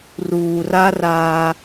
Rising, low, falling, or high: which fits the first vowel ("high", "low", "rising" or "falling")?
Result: low